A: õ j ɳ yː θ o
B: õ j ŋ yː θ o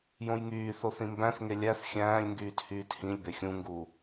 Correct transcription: B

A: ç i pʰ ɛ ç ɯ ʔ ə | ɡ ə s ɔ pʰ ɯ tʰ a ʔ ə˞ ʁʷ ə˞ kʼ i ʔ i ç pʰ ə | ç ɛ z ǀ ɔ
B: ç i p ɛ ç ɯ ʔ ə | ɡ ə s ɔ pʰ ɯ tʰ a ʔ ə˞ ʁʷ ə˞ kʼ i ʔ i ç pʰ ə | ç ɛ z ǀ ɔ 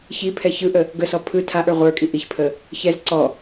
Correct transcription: A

